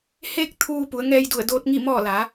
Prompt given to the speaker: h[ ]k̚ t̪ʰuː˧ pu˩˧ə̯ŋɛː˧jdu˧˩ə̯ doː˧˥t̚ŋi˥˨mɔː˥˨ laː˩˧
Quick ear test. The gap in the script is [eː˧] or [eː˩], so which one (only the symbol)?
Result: eː˧